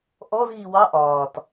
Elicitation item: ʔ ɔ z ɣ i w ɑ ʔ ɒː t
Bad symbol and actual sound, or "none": none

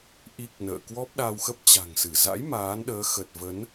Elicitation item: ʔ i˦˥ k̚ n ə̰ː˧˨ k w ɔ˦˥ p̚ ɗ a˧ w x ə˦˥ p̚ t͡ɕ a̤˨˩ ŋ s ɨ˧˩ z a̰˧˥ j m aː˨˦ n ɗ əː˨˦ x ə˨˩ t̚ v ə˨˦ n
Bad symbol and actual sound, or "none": none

